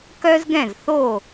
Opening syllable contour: high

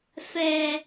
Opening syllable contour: low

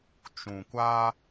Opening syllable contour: low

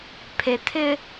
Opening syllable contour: low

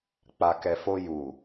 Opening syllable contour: low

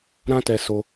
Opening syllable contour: high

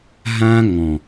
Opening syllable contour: high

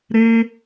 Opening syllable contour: high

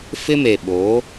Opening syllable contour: high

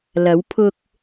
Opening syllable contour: rising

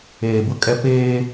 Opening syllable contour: low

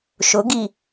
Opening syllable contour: rising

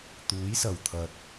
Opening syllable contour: rising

